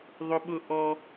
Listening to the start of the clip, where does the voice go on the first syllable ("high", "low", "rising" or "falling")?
high